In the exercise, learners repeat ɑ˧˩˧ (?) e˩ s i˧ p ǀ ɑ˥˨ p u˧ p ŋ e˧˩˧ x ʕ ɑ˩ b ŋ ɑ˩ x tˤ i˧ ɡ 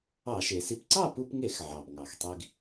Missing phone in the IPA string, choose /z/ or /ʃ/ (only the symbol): ʃ